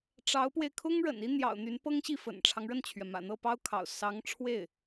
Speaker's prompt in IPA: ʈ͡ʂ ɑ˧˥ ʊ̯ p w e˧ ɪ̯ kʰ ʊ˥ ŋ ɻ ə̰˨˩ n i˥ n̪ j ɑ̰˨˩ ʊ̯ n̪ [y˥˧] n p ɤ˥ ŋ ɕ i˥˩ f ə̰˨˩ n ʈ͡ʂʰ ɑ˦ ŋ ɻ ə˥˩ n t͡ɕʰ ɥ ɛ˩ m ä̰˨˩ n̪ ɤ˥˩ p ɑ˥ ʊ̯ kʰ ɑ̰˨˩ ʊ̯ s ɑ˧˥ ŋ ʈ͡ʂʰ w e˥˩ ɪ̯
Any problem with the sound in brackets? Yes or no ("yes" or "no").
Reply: yes